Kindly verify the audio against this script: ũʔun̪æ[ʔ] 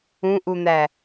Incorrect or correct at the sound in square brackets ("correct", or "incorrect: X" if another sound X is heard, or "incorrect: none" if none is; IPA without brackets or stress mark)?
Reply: incorrect: none